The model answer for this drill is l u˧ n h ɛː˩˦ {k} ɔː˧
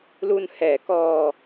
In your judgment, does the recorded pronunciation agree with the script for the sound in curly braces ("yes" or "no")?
yes